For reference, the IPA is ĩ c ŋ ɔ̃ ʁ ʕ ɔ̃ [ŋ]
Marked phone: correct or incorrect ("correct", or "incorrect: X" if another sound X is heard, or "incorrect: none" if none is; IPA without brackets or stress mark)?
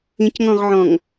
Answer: correct